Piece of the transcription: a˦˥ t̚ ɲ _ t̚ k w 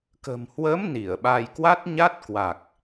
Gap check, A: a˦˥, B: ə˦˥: A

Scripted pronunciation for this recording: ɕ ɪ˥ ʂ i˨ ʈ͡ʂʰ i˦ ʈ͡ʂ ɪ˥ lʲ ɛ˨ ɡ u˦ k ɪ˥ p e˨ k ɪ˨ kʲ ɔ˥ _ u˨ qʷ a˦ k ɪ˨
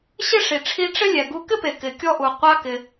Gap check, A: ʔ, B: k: A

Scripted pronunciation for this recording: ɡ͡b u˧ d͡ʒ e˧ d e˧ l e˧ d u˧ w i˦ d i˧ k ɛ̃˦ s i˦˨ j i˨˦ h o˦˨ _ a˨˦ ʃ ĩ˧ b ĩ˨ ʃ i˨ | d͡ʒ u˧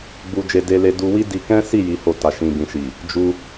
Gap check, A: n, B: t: B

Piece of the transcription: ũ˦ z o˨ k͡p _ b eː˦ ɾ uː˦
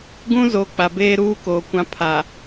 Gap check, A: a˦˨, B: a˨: B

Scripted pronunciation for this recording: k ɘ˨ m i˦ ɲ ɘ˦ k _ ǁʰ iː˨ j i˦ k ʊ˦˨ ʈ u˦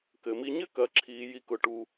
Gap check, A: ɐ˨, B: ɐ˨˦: A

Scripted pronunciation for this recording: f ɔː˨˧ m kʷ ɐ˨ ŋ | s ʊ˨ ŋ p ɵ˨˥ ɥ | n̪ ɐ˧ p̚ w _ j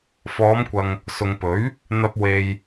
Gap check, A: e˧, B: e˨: B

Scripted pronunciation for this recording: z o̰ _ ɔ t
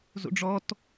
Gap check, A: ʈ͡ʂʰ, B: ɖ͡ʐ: B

